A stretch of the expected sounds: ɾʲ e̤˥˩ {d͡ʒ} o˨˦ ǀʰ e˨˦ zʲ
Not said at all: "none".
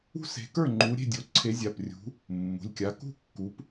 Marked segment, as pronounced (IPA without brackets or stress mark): dʲ